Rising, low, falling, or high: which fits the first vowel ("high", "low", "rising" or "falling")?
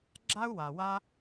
high